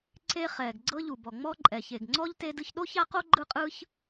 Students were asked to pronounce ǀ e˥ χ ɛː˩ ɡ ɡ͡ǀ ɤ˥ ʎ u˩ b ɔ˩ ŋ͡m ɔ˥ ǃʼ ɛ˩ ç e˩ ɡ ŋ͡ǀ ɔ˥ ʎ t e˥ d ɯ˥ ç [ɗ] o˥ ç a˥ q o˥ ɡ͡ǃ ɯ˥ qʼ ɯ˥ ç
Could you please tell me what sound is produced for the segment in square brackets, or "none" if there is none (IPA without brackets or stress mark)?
ɗ